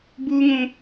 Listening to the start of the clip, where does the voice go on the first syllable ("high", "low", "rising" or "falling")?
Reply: high